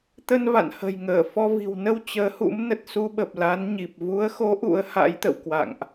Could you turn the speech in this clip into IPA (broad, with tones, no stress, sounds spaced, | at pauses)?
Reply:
t̪ ə˧ n v a̰˧˨ n h ə̤˨˩ j ŋ əː˧˩ f ɔ˧ v i̤˨˩ w n ə˧ w t͡ɕ əː˨˦ h ṵ˧˥ m n ə˨˩ t̚ s u˧ ɓ ə˨˩ p̚ l a˨˦ n ɲ i˨˩ p̚ v u˨˦ ə̯ x o˨˦ ʔ ṵ˧˥ ə̯ h a̰˧˥ j t̪ ə̰˧˨ w k w a̰˧˨ ŋ ʔ